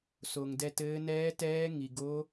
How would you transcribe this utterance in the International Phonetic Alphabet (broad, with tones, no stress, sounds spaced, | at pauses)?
s o˩ ŋ d ɛ˦˨ t ɘː˧˥ n ɛː˧˥ t ɛː˧˥ ŋ i˩ ɡ o˧˥